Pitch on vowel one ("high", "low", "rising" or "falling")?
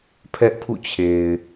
high